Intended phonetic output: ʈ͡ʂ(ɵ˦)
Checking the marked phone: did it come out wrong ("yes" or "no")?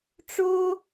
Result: yes